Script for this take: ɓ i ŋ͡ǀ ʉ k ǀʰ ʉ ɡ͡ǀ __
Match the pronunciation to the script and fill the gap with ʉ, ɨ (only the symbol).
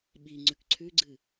ɨ